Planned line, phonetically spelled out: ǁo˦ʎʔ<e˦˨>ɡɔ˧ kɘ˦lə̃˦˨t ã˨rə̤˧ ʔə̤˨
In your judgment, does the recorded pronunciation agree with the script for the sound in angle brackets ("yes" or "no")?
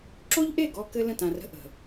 yes